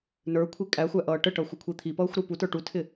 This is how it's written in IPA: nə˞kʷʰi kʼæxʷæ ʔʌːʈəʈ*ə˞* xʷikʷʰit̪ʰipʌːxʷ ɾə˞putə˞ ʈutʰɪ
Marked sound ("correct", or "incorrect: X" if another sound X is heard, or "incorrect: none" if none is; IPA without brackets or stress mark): incorrect: ʌ